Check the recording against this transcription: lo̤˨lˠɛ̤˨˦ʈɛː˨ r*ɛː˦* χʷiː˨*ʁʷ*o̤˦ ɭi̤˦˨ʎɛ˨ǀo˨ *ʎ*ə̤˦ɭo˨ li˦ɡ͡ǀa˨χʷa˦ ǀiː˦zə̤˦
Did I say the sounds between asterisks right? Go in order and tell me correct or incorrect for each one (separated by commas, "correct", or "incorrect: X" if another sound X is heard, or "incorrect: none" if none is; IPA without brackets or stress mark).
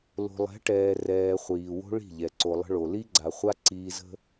incorrect: ɛː˨, incorrect: w, incorrect: lˠ